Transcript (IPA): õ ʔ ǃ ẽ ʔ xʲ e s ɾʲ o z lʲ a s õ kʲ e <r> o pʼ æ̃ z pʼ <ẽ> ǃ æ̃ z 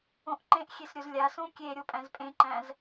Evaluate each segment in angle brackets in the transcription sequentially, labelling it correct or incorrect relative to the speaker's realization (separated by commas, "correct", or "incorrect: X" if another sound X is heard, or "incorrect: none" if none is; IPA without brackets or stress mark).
incorrect: ɾʲ, correct